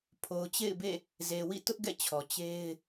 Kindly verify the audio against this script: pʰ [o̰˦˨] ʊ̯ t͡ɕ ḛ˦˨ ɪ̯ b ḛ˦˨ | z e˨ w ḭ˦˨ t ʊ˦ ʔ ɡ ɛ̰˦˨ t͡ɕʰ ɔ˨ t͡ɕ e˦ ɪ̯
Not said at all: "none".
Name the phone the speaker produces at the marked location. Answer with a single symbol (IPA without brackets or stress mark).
o˨